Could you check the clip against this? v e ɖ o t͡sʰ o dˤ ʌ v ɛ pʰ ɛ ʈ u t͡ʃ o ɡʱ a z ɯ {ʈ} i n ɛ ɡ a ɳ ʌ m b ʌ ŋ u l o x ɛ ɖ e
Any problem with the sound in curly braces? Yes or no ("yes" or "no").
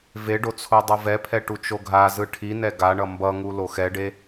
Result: yes